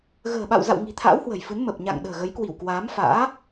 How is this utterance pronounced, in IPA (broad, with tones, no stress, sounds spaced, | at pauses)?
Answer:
ɣ ə̤ː˨˩ ɓ a̰˧˨ w z a̰˧˨ w ŋ i̤˨˩ t̪ʰ a̰ː˧˥ w h w ə̤˨˩ j f ɨ˨˦ n m ə˨˩ p̚ ɲ a̰˧˨ ŋ ɗ ə̤ː˨˩ ɣ ə˨˦ j k w i˧˩ w k w aː˨˦ m f a̰ː˧˥